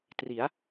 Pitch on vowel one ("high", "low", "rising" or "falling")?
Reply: rising